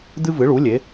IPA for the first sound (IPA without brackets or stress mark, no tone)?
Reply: d̪